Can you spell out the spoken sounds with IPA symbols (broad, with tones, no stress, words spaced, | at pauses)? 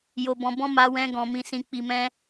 jo˧bɔ̃˧bɔ̃˦ ma˧wɛ̃˧ɡɔ̃˨ mĩ˨sĩ˨k͡pi˨mɛ̃˧